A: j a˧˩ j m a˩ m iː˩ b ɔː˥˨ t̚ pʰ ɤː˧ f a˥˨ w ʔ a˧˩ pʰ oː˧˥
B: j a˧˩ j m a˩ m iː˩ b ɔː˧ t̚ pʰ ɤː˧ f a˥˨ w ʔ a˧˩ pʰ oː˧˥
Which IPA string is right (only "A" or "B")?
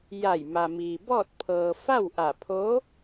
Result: A